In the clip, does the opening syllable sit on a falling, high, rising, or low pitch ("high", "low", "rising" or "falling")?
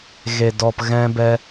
low